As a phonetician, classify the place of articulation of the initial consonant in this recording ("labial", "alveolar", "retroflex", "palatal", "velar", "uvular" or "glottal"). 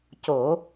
palatal